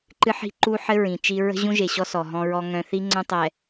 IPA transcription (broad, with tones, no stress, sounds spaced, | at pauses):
ǃ ɨ˦ ħ i̤˦ ǃ u˦ ħ ɘ˦ ɹ ĩ˨ t͡ʃ i˦ ɹ ə̤˦ ʑ ũ˦ ʒ e˨ ɕ ɔ˦ s ɔ˨ ɦ ɔ̃˦ ɹ ɔ˦ ŋ œ̃˦ θ i˦ ŋ͡ǀ œ̃˦ tˤ ɛ˨